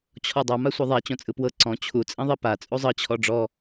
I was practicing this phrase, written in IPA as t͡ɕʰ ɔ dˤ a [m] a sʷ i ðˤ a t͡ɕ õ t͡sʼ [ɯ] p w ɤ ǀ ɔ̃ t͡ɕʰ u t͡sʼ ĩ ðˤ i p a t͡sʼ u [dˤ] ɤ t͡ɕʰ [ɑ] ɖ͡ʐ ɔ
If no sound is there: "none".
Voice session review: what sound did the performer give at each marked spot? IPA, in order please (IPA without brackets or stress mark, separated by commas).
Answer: m, ɯ, zˤ, ɔ